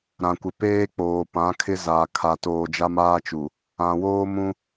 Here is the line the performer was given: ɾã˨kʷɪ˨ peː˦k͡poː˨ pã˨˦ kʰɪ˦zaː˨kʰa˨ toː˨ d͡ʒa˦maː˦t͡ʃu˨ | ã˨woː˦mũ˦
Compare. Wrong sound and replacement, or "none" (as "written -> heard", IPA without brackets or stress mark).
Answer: none